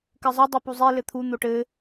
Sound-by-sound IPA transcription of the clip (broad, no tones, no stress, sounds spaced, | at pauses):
k ɘ zˤ ɘ dˤ ɘ p u zˤ i l ɘ t̪ʰ u n̪ o ʈ ɘ